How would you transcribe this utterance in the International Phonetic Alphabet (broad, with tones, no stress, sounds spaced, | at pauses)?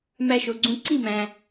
m æ˧ ʃ o˩ ɡ͡ǀ ũ˧ ǀ i˥˩ m æ̃˩